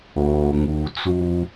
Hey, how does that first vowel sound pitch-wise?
low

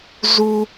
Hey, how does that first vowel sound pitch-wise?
high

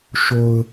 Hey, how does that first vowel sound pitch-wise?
low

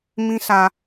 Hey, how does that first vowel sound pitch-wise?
high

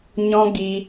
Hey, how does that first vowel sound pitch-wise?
high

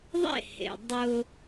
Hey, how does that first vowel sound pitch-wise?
falling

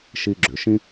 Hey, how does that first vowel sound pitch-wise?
high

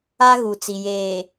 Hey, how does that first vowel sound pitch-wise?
high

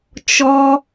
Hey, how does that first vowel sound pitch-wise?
high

